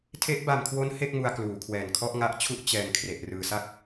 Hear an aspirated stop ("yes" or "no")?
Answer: yes